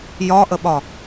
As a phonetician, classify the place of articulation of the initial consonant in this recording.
palatal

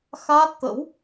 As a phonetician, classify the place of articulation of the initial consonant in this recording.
velar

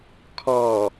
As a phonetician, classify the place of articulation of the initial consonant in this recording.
velar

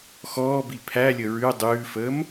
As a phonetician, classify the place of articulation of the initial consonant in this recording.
velar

